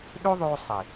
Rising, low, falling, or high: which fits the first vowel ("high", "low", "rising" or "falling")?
high